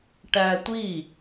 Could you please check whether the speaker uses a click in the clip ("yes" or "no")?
no